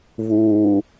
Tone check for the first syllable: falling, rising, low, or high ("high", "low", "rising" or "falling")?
low